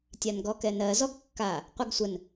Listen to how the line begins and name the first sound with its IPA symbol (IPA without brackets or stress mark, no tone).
tʲ